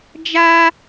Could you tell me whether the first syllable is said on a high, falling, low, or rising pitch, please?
high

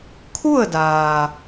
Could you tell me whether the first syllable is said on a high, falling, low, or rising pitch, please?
falling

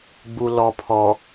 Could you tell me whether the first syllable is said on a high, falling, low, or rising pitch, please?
low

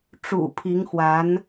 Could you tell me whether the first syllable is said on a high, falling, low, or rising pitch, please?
low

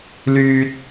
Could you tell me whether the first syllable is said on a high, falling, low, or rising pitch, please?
low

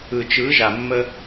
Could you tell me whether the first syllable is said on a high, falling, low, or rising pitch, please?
low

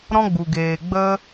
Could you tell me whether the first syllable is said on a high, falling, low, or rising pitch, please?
high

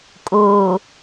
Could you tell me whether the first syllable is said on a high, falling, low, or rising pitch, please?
low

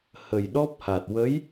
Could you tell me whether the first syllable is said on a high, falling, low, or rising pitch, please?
low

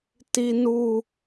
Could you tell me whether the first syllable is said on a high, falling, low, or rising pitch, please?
high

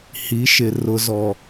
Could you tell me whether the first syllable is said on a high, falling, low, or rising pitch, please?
rising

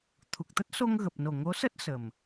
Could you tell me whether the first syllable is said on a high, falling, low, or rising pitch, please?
low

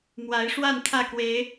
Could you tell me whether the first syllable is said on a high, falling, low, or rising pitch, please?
rising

